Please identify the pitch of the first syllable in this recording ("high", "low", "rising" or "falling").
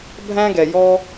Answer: high